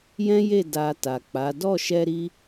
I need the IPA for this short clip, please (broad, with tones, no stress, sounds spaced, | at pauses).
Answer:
j ɛ̃˦ j e˦˨ d a˧ t a˨ k͡p a˨˦ d ɔ˦˨ ʃ ɛ˧ ɾ i˧